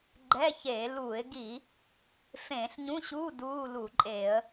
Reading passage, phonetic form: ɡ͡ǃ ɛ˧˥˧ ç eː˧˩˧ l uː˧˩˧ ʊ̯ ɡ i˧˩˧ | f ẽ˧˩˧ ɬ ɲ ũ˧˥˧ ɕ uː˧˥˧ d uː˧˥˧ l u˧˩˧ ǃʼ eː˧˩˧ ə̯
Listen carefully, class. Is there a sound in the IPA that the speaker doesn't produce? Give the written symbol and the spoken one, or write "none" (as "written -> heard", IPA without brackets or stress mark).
ʊ̯ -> ɪ̯